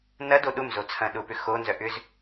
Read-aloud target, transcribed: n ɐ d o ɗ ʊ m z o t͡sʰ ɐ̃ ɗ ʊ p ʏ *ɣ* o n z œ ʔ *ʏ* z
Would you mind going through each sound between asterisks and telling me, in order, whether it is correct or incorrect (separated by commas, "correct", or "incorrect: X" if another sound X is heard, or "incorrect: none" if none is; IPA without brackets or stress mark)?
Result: incorrect: x, correct